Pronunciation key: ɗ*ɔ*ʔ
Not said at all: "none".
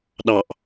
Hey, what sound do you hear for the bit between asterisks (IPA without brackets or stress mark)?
ɑ